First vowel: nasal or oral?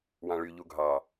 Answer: nasal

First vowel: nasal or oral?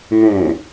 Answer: nasal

